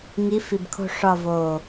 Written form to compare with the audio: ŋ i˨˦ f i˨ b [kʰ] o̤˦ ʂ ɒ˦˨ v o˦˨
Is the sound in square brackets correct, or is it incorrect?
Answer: correct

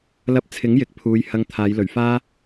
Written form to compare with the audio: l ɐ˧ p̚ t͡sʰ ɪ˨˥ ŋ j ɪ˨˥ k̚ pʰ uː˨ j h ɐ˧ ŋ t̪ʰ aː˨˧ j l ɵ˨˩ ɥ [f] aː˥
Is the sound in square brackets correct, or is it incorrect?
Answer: correct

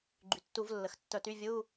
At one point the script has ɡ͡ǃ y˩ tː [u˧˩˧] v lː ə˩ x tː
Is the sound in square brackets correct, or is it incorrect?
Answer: correct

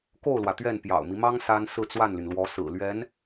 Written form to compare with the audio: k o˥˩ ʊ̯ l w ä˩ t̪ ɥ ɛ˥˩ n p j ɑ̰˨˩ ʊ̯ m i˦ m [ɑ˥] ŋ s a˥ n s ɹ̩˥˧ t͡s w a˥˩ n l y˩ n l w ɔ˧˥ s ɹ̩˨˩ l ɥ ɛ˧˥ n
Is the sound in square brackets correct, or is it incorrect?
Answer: correct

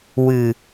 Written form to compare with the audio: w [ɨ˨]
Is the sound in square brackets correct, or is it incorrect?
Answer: correct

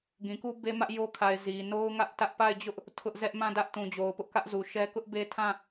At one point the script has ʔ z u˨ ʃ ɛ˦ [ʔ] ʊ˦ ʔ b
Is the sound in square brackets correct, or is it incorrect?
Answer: incorrect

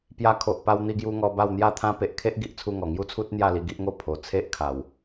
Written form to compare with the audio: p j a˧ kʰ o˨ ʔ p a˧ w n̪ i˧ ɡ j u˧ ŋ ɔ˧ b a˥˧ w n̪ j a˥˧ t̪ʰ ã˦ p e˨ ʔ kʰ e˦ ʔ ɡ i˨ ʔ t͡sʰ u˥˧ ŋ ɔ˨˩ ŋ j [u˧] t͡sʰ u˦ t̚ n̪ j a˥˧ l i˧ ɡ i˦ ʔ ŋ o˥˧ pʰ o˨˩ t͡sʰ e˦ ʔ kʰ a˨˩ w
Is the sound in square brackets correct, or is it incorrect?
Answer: incorrect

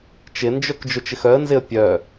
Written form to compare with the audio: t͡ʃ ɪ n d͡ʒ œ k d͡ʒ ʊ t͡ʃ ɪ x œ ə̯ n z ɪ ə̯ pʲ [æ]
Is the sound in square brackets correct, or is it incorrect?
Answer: incorrect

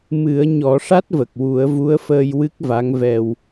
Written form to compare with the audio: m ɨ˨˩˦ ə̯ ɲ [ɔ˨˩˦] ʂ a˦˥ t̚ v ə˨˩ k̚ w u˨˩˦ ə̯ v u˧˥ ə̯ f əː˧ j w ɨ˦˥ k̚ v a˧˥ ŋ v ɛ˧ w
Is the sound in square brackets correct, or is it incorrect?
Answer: correct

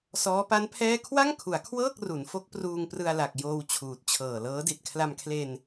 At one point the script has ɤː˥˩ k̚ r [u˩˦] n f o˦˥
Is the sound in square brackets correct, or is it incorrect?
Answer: correct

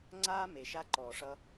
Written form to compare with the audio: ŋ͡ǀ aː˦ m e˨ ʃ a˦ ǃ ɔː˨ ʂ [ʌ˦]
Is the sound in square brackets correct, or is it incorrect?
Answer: correct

